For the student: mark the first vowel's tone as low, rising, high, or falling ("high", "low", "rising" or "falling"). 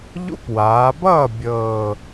high